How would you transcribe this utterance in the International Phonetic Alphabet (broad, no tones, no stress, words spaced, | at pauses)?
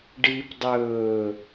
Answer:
ɖip dˤɵː